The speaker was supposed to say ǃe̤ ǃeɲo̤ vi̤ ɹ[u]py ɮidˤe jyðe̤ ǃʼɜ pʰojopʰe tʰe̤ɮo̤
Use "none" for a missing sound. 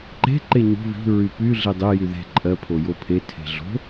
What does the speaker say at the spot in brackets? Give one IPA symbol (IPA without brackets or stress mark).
y